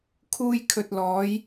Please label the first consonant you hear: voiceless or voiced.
voiceless